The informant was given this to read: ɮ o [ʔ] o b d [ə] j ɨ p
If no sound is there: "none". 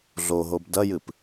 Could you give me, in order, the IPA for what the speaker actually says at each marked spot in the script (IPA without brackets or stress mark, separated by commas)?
ɦ, ɐ